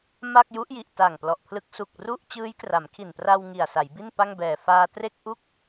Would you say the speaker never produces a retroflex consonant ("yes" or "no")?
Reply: yes